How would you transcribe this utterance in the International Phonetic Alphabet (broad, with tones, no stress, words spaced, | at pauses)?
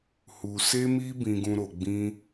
hu˧se˦mi˦ bĩ˦ɡũ˦ ɾo˧ɡ͡bĩ˦